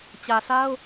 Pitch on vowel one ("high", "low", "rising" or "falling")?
low